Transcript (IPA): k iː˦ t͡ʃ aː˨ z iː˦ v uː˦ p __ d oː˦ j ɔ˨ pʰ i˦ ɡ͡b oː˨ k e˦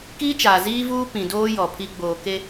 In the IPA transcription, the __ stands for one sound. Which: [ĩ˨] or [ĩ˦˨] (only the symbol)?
ĩ˨